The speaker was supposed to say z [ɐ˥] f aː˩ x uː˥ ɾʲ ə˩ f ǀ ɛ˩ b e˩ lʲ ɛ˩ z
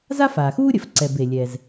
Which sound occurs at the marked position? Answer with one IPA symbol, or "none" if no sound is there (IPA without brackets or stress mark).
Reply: a˥